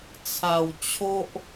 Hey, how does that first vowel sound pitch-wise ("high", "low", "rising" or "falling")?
low